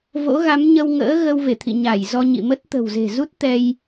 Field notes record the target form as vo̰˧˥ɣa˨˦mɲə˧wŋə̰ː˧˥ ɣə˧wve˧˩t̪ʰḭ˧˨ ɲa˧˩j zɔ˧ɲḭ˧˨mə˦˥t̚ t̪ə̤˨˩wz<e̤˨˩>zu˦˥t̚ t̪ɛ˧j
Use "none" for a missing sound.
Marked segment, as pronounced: e̤˨˩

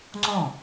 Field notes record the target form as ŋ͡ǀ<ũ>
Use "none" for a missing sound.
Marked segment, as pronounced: õ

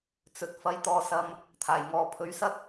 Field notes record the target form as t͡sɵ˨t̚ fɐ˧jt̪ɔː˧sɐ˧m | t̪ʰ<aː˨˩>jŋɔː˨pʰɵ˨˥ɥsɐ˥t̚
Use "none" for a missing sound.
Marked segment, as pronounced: aː˨˩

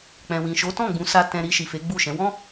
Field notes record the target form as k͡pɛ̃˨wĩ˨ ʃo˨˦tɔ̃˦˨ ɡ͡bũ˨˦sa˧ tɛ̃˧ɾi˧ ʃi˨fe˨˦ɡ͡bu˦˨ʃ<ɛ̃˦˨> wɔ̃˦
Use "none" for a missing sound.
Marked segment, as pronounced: ɛ̃˨˦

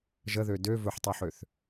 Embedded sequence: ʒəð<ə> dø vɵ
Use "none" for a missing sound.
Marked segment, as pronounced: ø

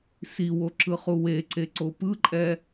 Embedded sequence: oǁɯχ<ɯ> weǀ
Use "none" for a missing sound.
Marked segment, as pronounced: u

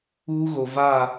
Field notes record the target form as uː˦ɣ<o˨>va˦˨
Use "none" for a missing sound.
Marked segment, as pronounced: o˨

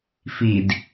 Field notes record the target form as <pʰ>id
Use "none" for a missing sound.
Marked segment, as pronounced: f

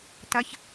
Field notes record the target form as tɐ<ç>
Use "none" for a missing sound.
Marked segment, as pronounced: ç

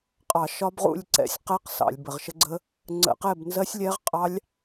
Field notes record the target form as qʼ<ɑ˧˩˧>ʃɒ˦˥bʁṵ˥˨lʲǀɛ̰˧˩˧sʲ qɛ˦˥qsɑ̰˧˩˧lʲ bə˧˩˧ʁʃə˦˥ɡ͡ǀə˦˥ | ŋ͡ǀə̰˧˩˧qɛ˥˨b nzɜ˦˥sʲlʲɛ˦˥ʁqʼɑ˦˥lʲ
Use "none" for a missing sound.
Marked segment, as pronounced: ɑ˧˩˧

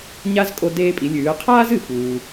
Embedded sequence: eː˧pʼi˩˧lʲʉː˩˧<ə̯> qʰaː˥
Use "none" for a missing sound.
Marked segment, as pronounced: ə̯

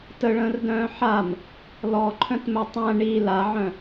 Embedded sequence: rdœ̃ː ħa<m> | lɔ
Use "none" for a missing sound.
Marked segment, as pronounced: m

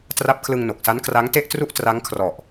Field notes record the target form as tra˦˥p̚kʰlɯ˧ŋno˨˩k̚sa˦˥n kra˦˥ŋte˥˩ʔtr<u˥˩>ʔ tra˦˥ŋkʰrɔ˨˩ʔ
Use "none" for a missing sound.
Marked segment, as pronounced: u˥˩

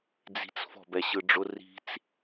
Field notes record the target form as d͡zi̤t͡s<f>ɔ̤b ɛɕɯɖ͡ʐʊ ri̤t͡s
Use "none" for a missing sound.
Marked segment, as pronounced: f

